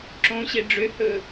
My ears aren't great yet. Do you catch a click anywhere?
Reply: yes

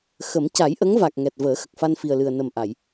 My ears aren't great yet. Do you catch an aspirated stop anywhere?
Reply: no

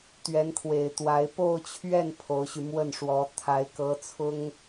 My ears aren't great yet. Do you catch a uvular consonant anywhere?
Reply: no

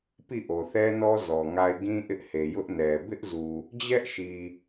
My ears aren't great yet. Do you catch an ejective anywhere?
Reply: no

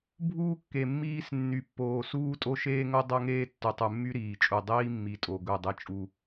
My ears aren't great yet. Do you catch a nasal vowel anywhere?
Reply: no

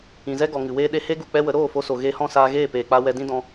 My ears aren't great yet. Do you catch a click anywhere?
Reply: no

